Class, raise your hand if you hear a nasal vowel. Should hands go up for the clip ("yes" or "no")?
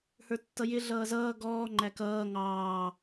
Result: no